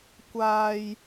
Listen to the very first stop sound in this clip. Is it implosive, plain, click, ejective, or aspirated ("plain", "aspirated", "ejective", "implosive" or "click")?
plain